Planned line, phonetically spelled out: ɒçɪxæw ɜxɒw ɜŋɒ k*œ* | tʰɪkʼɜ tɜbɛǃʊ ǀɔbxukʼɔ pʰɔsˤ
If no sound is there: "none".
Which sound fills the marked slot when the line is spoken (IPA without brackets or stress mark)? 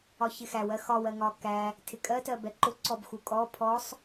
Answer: æ